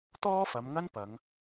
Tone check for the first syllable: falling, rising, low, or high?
high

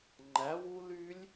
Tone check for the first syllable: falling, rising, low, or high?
rising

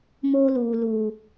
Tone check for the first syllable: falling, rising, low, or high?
high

